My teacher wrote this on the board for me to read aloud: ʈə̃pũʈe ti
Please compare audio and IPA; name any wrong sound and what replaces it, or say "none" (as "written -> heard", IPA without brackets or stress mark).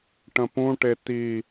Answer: none